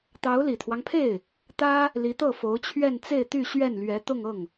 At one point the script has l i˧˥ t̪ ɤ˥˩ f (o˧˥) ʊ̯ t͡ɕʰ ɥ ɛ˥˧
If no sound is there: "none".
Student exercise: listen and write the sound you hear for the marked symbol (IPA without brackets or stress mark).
o˧˥